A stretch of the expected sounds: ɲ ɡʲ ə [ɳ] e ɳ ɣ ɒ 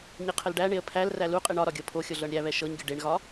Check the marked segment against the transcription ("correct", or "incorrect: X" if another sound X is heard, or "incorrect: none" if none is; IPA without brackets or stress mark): incorrect: ɖ